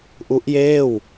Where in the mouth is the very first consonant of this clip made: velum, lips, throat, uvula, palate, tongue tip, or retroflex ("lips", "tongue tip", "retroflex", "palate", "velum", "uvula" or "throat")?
throat